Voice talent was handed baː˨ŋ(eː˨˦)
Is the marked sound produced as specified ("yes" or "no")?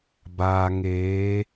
yes